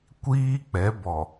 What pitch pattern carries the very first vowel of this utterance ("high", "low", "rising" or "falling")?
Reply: high